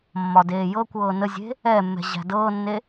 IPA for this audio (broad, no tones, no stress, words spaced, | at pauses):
mːɒdeːjɤkʷɤː nəzʲe̤ | ɛmːɛ̤ ʑæ̤dɤːnːe